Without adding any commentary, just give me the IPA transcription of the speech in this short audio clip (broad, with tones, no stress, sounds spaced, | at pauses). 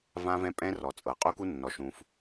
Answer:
v ã˦ v ɛ̃˦ pʼ ɛ̃˦ r ɔ˨ t͡sʼ ɤ˨ qʼ u˦ k u˦ nː ɔ˨ ʃ ũ˦ f